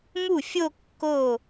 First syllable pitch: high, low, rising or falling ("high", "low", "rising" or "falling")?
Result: falling